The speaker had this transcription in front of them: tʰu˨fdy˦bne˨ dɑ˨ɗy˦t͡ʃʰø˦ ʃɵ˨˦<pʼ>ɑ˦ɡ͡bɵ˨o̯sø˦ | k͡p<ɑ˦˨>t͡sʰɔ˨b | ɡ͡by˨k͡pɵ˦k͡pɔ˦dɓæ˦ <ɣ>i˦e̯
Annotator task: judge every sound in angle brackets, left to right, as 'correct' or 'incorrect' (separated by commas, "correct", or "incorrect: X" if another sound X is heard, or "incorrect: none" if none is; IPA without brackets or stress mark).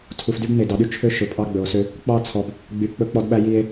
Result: correct, correct, incorrect: j